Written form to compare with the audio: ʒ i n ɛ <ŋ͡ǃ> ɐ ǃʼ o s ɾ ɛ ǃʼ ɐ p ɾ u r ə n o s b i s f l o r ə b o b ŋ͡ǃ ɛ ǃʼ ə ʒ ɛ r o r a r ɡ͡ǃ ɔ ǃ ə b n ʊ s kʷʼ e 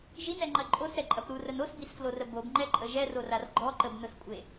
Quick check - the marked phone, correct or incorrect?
correct